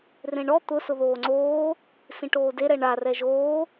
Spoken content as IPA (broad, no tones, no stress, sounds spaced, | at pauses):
r ẽ ɳ ɔ t̪ ʊ s ʊ ð oː ŋ͡ǀ oː | s ĩ ʈ oː d e ɾ ɛ ɳ a r ɛ ʒ oː